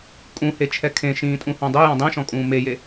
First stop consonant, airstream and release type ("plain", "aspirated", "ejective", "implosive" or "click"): ejective